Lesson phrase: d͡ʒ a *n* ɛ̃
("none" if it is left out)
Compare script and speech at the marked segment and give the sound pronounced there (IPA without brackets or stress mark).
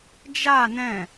n